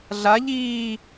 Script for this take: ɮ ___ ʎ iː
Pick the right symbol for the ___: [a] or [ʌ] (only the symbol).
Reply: a